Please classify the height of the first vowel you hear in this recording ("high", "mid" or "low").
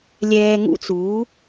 mid